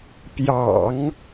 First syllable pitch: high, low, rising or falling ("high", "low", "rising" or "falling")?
low